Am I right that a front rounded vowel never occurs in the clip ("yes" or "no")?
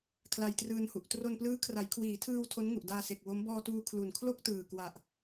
yes